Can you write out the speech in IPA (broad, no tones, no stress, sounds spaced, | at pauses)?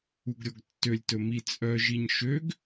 u ɡ ɾʲ ɔ ɡ tː ø lʲ t ɵ m i t͡sʼ œ ʒ i ɲ ʃ ø ɡ